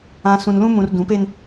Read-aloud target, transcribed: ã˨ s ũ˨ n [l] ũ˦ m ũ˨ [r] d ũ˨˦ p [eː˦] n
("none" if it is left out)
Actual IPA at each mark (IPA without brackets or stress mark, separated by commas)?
l, r, e˦